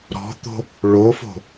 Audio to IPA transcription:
ɾ ɔ̤ t̪ o̤ | ɭ o f o̤

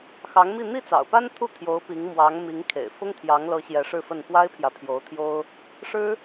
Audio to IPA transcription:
x ɑ˧˥ ŋ m i˥˧ n̪ i˥˩ t͡s ɑ̰˨˩ ʊ̯ p a˥ n t̪ʰ u˥˩ t̪ʰ j o˧˥ ʊ̯ p i˧˥ ŋ m w ɑ˧˥ ŋ m i˧˥ ŋ kʰ ḛ˨˩ ɪ̯ f ʊ˥ ŋ t̪ʰ j ɑ˧˥ ŋ l ɤ˧˥ ɕ j ɛ˧˥ ʂ ɻ̩˥˧ f ə˥˩ n p w a˥ ɪ̯ pʰ j ä˨ pʰ j o˧˥ ʊ̯ t̪ʰ j o˥ ʊ̯ | ʂ ɻ̩˥

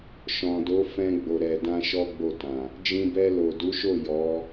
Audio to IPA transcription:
ʃ ɔ̃˨ d o˨˦ f ɛ̃˧ ɡ͡b o˨ ɾ ɛ˨ d ã˧ ʃ ɔ˦ ɡ͡b o˦˨ t ã˨ | d͡ʒ ĩ˧ b ɛ˧ l o˨ d u˨˦ ʃ o˦˨ j ɔ˨˦

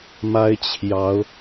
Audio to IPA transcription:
m a˥ ɪ̯ t͡ɕʰ j ɑ˧˥ ʊ̯

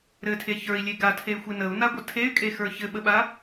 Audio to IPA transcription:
ɾ ɘ tʰ e ç ə˞ i̯ lʲ e ɡ a tʰ e y̯ xʷ e n ə u̯ n a ɡʷ ə tʰ e y̯ kʼ e x ə˞ ç ɘ ɓ ə ɓ a

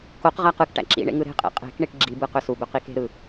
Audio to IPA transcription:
k o q ʁ æ q ɯ k ʈ æ̰ ǁ ḭ ɳ ḛ ŋ ɯ ɾ e̤ qʼ ḛ qʼ e̤ k ɳ i ʈ ɡ͡ǁ i b ɯ q ø s u b ø q i k e̤ ɾ ɯ

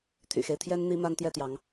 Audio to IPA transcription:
t̪ʰ y̰˨˩ x e˦ ɪ̯ t̪ʰ j ɛ˥ n n̪ i˥ m a˥ n t̪ j ɛ˥˩ t̪ j ɑ˧˥ ŋ

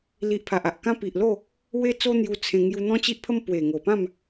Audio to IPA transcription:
l i˦ ʔ pʰ a˨ ʔ a˨ ʔ k ã˦ p i˨ ʔ l o˥˧ | w e˦ t͡s o˦ n̪ j u˧ t͡sʰ ẽ˧ ŋ j u˧ n̪ ɔ̃˦ t͡ɕ i˦ ʔ pʰ ə˦ m p w e˨˩ ŋ o˨˩ p ã˥˧ m

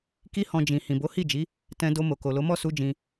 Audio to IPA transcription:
k i˧ h ɔ̃˨ d͡ʒ ĩ˨ h ĩ˨ b o˨˦ h i˦˨ d͡ʒ i˨˦ | t ɛ̃˧ d o˧ m o˨ k o˨ l o˨˦ m ɔ˦˨ s u˧ d͡ʒ ĩ˧

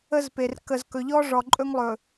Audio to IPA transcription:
ə˦ z p e˨ r k ə˨ z k ɵ˨ ʎ ɔ˦ ʐ ɔ˨ ǃʼ ɵ˦ ŋ lˠ ɵ˨

